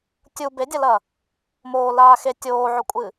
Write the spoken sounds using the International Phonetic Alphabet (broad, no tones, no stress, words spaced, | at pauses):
tʲu bedʲɐlɐ | moːlaː xe tʲoːʕɵkʷʼɨ